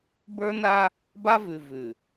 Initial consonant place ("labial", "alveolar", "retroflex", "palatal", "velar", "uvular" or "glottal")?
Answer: labial